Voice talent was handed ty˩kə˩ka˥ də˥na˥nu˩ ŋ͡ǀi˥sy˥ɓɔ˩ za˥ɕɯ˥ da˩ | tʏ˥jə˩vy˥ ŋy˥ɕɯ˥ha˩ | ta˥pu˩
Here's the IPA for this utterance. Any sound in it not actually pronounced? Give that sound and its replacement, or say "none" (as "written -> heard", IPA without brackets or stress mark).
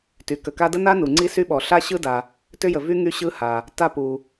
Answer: z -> ɬ